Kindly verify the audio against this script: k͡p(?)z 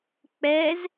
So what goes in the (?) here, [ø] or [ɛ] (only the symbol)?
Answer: ɛ